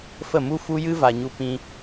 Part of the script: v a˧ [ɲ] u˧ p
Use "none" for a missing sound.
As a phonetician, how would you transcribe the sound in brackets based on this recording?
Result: ɲ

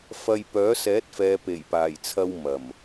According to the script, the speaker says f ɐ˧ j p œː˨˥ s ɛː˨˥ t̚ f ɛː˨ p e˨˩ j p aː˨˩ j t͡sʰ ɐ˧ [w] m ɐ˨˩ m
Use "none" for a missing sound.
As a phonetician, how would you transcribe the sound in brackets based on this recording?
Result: w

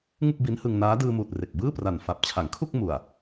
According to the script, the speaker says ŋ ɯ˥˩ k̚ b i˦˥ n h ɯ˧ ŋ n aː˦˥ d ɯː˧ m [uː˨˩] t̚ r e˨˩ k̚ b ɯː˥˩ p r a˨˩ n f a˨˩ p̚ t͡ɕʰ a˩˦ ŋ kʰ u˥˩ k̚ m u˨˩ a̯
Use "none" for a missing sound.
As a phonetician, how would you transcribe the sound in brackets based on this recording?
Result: uː˨˩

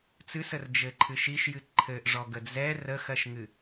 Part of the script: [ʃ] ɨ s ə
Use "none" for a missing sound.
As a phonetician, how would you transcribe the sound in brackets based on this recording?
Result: t͡s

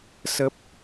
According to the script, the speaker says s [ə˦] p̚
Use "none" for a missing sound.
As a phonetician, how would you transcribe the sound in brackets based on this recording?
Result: ə˦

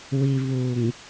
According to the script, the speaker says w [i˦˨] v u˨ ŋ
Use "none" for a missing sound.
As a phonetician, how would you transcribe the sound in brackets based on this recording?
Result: i˨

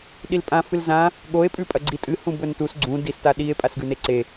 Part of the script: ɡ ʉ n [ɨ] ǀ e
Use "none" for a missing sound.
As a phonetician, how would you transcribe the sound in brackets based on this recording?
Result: e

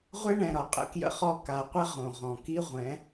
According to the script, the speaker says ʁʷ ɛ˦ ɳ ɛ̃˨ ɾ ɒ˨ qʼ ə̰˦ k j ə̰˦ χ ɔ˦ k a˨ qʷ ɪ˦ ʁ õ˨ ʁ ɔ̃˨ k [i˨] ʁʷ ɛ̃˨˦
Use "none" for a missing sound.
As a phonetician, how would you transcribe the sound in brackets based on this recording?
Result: i˦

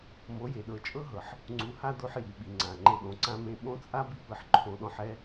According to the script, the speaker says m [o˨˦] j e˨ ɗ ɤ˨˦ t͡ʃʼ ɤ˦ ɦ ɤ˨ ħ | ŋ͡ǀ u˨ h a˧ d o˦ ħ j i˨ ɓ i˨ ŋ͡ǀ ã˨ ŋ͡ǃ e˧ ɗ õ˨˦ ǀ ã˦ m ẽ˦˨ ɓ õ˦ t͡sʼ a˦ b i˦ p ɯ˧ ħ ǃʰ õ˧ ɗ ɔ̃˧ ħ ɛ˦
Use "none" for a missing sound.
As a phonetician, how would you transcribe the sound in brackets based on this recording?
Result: o˨˦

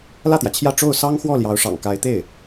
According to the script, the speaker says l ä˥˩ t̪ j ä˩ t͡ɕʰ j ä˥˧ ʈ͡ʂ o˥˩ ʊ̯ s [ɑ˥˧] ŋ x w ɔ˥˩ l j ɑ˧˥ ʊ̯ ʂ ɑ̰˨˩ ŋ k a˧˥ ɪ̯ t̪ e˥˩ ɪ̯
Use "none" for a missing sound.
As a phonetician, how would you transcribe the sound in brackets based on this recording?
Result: ɑ˥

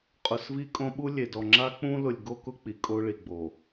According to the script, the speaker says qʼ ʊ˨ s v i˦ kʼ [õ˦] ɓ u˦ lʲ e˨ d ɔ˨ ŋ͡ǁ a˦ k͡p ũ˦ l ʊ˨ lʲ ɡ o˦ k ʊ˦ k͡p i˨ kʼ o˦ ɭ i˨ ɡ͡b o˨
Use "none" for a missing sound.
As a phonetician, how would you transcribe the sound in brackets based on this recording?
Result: õ˦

